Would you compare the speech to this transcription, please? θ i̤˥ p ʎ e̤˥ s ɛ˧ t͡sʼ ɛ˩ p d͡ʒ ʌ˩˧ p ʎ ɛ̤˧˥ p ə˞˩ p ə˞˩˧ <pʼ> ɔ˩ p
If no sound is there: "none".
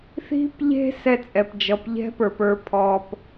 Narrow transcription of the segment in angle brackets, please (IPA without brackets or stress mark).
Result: pʰ